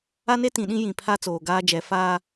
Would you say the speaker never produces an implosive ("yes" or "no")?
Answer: no